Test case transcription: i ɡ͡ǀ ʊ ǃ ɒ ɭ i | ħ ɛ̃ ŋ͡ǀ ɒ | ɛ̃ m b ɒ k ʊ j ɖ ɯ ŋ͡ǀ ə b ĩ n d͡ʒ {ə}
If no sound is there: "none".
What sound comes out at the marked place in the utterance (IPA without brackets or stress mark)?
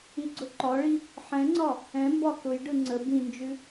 ʉ